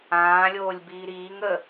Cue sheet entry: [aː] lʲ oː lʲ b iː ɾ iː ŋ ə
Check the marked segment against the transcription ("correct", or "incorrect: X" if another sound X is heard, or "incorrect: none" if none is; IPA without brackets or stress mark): incorrect: ãː